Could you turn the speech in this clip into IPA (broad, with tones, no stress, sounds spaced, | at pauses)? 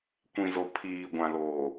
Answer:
kʷ ĩ˨ z o˨ pʰ iː˨ ɡʷ ã˨ l oː˨